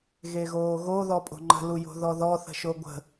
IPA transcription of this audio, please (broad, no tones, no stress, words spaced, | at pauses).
ɣeɣoːɣo ðɔpʼo̤ŋ͡ǃə̤ lujo̤ðɔðɔ θə̤ʃoɡʷə̤